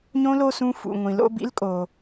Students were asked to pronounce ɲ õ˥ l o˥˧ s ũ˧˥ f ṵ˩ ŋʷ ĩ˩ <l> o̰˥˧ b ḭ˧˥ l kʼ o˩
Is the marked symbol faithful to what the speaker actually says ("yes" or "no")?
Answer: yes